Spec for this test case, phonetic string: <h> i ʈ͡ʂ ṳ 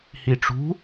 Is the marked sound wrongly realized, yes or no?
no